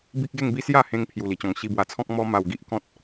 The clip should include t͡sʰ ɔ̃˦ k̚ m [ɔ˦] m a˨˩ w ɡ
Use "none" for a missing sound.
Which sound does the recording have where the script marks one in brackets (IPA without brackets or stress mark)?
ɔ˦